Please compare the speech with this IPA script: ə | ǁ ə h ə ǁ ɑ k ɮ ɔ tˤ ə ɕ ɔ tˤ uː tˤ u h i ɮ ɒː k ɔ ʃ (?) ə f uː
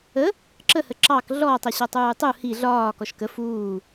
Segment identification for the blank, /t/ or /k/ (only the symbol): k